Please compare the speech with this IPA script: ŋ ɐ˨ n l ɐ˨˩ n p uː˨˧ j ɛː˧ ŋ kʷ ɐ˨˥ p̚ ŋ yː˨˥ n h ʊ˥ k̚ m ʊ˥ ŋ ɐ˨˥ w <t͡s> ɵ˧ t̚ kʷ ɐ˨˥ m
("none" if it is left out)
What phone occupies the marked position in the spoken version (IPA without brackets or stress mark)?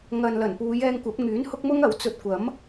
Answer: t͡s